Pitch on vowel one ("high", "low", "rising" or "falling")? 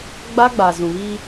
high